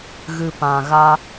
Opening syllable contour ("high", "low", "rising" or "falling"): low